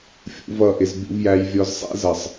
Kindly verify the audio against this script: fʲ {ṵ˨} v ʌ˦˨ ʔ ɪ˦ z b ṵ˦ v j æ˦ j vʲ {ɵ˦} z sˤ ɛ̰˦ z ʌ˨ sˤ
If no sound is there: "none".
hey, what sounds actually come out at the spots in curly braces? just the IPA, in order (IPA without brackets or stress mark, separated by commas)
ṵ˦, ɔ˦